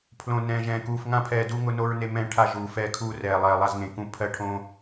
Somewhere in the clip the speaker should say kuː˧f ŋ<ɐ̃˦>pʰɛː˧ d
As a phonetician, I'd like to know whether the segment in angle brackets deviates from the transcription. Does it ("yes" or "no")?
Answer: yes